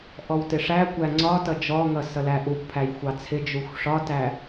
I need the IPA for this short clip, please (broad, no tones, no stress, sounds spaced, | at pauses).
ʔ ɔ w t ɪ ʂ æ kʷ æ ŋ͡ǀ ɒ t ʌ d͡ʒ ɔ ŋ ʌ s ʌ l æ ʔ u kʷ pʰ æ j xʷ ɑ t͡sʰ ɪ d͡ʒ u xʷ ʂ ɒ t æ